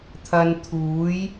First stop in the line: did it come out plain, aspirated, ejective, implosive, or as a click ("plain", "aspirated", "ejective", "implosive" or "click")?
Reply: aspirated